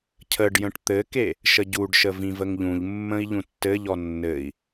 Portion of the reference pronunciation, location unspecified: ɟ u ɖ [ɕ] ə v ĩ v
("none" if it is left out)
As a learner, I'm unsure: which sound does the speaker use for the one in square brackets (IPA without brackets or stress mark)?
ʃ